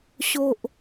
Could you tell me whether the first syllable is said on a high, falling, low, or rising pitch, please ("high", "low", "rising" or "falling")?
low